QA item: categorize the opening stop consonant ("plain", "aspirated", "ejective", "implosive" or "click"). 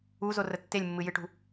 plain